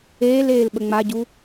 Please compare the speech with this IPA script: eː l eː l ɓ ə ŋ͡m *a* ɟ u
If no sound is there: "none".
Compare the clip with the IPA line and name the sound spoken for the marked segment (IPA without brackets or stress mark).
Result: a